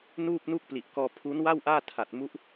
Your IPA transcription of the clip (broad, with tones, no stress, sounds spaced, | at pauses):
n uː˥˩ p̚ n u˥˩ k̚ p l i˨˩ ʔ k ɔː˧ pʰ u˦˥ n w a˥˩ w ʔ aː˥˩ tʰ a˨˩ t̚ m u˦˥ ʔ